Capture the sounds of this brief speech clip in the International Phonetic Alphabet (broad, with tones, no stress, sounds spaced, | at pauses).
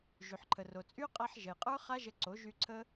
ʒ y˨ ħ ǃʰ ə˨ r o˨ t͡sʼ y˦ qʼ a˧ ħ ʒ ə˨ j qʼ ə˞˦ χ a˦ ʒ ə˧ ǀ o˨˦ ʒ y˧ ǀʰ ə˦